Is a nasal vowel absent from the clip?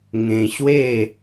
no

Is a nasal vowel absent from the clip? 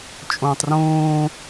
no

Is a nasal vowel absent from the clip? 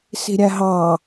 yes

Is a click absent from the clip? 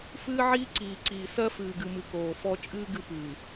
no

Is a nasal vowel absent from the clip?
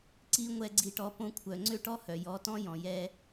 no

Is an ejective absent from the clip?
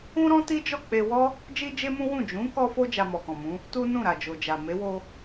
yes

